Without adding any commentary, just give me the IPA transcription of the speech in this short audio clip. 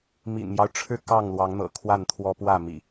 m ḭ˨˩ n m j ɑ˦ ʊ̯ ʈ͡ʂʰ ɻ̩˥˨ k ɑ˥˨ ŋ l w ɑ˨˦ ŋ n̪ ɤ̰˨˩ kʰ w a˥˨ n t̪ʰ w ɔ˦ p w ä˥˨ m ḭ˨˩

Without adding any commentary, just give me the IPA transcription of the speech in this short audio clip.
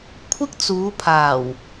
kʷʰ ɪ˥ k̚ t͡s uː˨˧ pʰ aː˨˩ w

